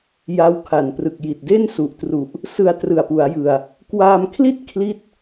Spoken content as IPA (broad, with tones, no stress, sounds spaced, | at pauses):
j a˦˥ w kʰ a˨˩ n p r ɯ˨˩ k̚ j i˨˩ t̚ d e˥˩ n s u˨˩ ʔ t r u˨˩ ʔ | s ɯ˧ a̯ t r ɯ˨˩ a̯ p u˩˦ a̯ j ɯ˨˩ a̯ | k w aː˧ m kʰ l i˥˩ t̚ kʰ l i˥˩ t̚